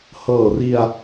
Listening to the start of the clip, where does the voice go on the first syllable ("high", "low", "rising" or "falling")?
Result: low